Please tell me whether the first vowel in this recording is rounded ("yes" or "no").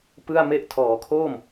no